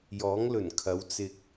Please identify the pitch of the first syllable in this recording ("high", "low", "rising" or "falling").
rising